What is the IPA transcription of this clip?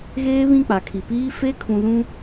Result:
ɣ eː˦ β ĩ˦˨ k͡p a˨ kʰ i˨ p iː˦ f e˦ kʰ ũ˨ z ũ˦

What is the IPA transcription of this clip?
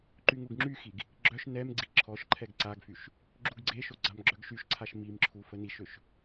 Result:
ǃ y ŋ u ɡ ŋ͡ǁ y x i ɡ | ɡ͡ǁ œ ʃ n ɛ m ɡ͡ǀ i ǁʰ ɔ ʃ ǃʰ ɛ ɡ ǀ a ɡ f y ʃ | ɡ͡ǁ u ɡ ɡ͡ǀ e ʃ o ɡ͡ǀ a m ɡ͡ǁ œ ɡ ʃ y ʃ ǀʰ a ʃ m i m ǁʰ u f ə n i ʃ ø ʃ

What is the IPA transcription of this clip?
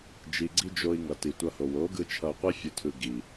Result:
d͡ʒ i˨ ɡ͡ǀ i˧ d͡ʒ o˧ i̯ ŋ ʌ˨ t i˨ tʷ ʌ˧ h o˨ w o˨˦ ɡ ɯ˧ t͡ʃʰ ʌ˧ u̯ qʷ i˦ fʲ u˨ tʰ ɯ˨ ɡ i˨

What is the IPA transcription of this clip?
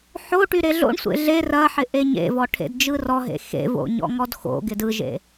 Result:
ħ o ʈ y ɾ e ɮ o̰ ɳ sʷ ḛ ɮ e r ɐ ħ ɪ ʔ e ɲ ḛ v ɔ ʈʰ ḛ d d͡ʒ ɯ r ɔ ɦ ḛ x ḛ v o̰ ɲ ɔ̰ ŋ ɔ d x o̰ ɡ ɪ d ɯ ʒ ḛ

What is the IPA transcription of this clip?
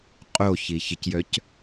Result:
qʼ o ç i ç ɪ c j œ c

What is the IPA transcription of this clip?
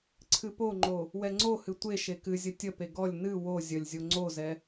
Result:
ǀʰ ɨ p o ŋ͡ǃ o | w ɛ ŋ͡ǀ o h ɨ tʷ e ʃ e k ɨ zʲ ə tʲ ə p e ɡ ɔ lʲ n ɨ w o zʲ ə lʲ zʲ o ŋ͡ǀ o z ɛ

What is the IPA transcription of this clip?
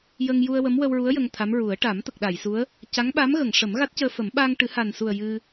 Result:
j ə˧ ŋ j u˧ ə̯ w ə˧˥ m w ə˧ w ɹ u˧˥ ə̯ j ə˧ ŋ t̪ʰ a˧˥ m ɹ u˨˩˦ ə̯ ʈ a˨˩˦ m t̪ ə˨˩ k̚ ɗ a˨˩˨ j s u˧˥ ə̯ | c a˧˥ ŋ ɓ a˧˥ m ɣ ə˨˩˨ ŋ ʂ ə˨˩˦ m ɣ a˦˥ t̚ c əː˧ f ə˨˩˦ m ɓ aː˧ ŋ ʈ ɨ˨˩˦ h a˨˩ n s u˨˩ ə̯ j ɨ˧

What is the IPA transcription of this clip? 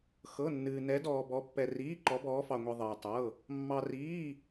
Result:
x ɤ˧˥˧ nː ɨː˧ n ɛ˧˥ d ɔː˧ b ɔ˧˥ pː ɛ˧ r iː˧˥˧ ǃ ɔ˧˥ b ɔː˧˥ f ɑ˧ ŋʷ i˧ ðˤ ɨː˧ tˤ ɤ˧˥˧ | mː ɑ˧ r iː˧˥˧

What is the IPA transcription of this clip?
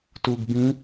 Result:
t u ɡ b ĩ

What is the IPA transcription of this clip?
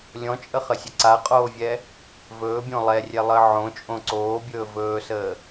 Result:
lʲ ɔ̃ t͡ʃʼ ə χ ə sʲ ə ǀ a qʼ oː vʲ ɛ | v ɵː bʲ õ lˠ ɛ rʲ ɛ lˠ əː ʕ õ t͡ʃʼ õ ǀ oː bʲ ɵː v ɵː s əː

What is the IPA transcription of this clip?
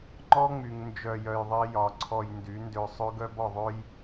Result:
ŋ͡ǃ ɔ˦ ŋ͡m y˨ ŋ n d͡ʒ œ˧ j œ˧ j ðˤ i˦ j ɒ˨˦ ǀʰ ɔ˧ j n d y˨˦ n d ø˧ sˤ ø˦ ɡ œ˦ b ɔ˧ ðˤ ø˦ j

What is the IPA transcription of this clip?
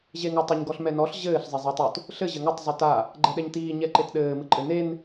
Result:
ʑ e ŋ ɔ tˤ ɘ ɲ ɡ ɔ ɬ m ɛ n ɔ ɬ ʑ ɘː ɬ zˤ e zˤ a tˤ u t | ɬ ɘ ʑ ɘ ŋ ɘ tˤ zˤ u t a | ɡ͡ǃ ɛ ɗ ɛ ɲ t iː ɲ ɛ ǃ e t ɗ ɘː m ɨ ǃʼ ɘ n e n

